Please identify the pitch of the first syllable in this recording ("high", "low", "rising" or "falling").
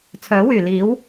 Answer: rising